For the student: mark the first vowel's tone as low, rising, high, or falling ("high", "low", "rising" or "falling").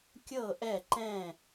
falling